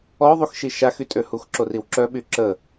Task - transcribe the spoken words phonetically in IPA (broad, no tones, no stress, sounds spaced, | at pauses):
ɔ ðˤ u x ʃ i ʃ a x y tʼ ø h u x ǁ o r i w ǁ œ ɓ y ǁ ə